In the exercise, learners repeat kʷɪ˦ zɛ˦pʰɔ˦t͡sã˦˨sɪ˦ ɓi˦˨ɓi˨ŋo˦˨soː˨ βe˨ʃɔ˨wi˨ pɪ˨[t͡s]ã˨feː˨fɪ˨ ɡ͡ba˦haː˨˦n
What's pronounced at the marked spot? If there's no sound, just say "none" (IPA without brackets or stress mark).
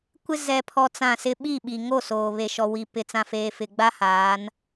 t͡s